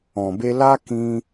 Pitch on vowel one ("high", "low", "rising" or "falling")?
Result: low